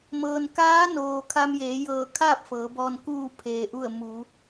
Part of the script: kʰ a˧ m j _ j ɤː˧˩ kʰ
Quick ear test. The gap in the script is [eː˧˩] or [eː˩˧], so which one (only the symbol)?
eː˩˧